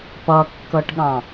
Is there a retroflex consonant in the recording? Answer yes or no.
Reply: yes